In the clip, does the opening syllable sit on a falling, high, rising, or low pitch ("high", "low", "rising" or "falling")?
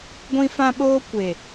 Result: high